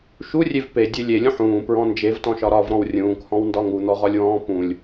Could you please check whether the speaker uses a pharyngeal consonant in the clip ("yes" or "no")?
yes